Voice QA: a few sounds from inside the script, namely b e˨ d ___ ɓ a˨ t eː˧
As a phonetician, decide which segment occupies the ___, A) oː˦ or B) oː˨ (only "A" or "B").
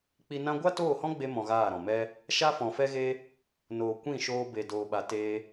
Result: B